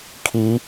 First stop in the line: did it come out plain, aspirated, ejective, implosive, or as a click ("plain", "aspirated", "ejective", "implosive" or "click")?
aspirated